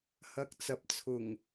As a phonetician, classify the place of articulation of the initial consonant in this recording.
glottal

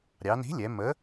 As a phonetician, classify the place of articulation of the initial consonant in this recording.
alveolar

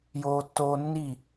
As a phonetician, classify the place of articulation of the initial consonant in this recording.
palatal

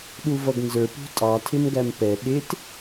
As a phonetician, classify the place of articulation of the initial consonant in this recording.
alveolar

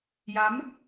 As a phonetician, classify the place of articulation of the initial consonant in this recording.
palatal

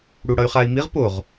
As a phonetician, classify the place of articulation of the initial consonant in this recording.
retroflex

